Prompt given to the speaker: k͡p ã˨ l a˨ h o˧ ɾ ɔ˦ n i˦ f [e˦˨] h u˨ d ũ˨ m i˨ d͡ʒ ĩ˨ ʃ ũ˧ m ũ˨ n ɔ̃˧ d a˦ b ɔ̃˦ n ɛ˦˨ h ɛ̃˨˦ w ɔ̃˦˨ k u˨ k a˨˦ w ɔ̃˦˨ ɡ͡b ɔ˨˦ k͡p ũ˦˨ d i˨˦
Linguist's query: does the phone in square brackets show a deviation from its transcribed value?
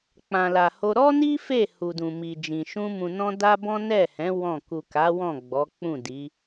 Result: no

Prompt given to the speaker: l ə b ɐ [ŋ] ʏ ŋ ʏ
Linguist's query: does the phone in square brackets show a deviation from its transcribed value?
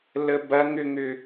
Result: no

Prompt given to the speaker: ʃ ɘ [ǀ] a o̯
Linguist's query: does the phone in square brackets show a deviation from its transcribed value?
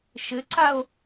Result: no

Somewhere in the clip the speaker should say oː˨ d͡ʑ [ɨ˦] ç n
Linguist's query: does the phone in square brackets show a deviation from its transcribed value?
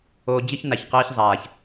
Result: no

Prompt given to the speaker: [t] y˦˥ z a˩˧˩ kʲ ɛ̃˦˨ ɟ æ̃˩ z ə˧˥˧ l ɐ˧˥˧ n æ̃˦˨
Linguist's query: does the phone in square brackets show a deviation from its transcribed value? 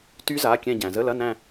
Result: no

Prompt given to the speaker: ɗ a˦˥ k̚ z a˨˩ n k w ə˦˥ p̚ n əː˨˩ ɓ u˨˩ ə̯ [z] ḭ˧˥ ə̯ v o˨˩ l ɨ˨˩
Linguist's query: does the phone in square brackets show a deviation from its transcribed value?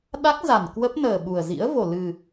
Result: no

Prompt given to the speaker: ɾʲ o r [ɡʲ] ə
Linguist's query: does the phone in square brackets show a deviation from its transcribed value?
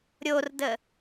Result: yes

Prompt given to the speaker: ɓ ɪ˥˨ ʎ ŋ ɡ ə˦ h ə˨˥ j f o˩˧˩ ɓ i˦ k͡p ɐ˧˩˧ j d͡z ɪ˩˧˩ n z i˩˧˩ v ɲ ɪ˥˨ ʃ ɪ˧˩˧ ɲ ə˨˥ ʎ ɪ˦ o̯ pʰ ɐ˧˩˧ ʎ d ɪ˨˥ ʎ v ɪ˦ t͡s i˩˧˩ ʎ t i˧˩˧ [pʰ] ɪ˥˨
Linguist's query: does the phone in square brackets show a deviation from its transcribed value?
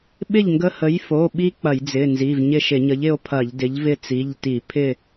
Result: no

